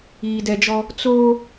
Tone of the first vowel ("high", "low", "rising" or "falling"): low